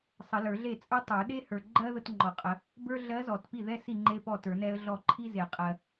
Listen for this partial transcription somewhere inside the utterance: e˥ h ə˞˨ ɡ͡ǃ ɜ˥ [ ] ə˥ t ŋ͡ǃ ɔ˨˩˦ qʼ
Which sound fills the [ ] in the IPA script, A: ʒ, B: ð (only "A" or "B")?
B